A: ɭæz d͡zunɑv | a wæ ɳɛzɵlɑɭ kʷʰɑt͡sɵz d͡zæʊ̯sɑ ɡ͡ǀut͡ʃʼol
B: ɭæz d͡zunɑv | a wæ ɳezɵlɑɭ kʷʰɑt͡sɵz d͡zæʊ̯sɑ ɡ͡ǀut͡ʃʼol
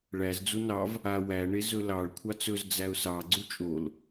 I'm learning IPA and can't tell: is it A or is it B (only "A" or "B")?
B